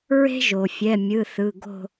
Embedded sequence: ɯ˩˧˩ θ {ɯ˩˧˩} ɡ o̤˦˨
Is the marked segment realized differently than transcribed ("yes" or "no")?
no